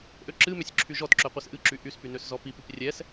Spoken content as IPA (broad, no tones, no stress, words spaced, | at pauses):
ʔøǁɨmøsʲ ǁʰyʒɔtǁø qʷɛsʔɨǁy ʔyspy nøszɔpipip rʲɛs